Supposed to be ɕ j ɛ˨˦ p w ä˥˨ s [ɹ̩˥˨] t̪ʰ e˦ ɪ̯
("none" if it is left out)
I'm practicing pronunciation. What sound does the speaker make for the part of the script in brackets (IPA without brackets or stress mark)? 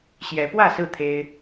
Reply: ɹ̩˥˨